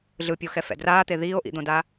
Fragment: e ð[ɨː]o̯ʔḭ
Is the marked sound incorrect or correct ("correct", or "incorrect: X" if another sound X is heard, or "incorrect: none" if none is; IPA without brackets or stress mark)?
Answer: incorrect: iː